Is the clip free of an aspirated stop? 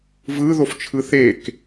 no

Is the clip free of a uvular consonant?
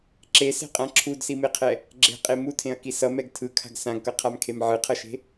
no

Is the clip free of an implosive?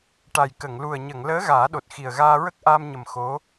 no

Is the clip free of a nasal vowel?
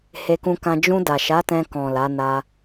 no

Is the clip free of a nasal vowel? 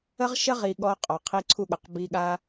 yes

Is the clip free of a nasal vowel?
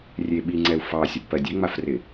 yes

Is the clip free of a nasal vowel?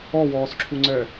yes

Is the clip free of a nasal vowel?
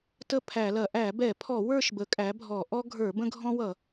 no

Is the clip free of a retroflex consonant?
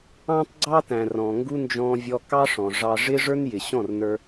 no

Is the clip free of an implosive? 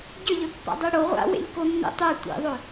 yes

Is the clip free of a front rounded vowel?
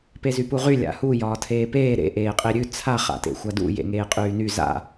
no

